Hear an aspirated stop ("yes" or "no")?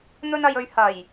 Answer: no